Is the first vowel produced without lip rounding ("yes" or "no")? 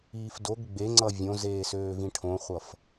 yes